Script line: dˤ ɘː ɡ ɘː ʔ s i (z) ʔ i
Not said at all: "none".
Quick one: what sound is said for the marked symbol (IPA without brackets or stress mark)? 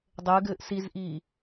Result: z